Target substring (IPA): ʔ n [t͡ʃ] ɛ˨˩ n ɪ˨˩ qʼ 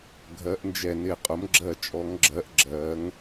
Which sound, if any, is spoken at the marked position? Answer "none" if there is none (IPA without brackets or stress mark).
d͡ʒ